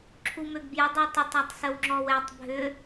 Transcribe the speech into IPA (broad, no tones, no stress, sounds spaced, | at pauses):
ǁʰ u m ø ɡ b j ə dˤ ø tˤ ɪ tˤ a tˤ s ə w ŋ͡ǁ ɔ w ɛ tˤ bʱ ʏ